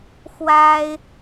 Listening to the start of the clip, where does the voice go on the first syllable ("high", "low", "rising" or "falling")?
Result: high